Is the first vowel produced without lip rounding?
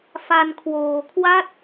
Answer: yes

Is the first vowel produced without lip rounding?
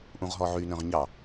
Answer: no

